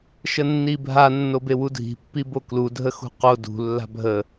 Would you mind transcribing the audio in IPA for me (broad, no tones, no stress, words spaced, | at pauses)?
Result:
ʃənːibʱa nːobewudʱi̤ pːiboklu dʱəxṳqo dṳ lːa̤bʱə